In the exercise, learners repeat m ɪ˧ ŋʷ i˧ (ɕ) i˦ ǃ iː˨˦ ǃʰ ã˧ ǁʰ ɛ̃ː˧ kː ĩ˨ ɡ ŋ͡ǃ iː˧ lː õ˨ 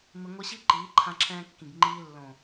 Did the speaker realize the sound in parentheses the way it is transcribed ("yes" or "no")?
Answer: yes